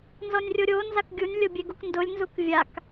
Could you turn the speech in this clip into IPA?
n z ɔ nʲ rʲ o ɾʲ o n z a k ɡʲ u nʲ lʲ o bʲ e ɡ u k n d ʊ lʲ n z u k vʲ a k

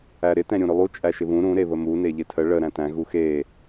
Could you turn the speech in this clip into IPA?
æ ɾ ɪ t ɛ̃ ɾʲ ũ ɾ ʏ lˠ u t͡ʃʼ æ ʃ ɪ β ũ ɾ ũ ɾ e β ə m u n e ʎ ɪ tʰ ə ɭ ə ɾ æ̃ t æ̃ ɣ u x e

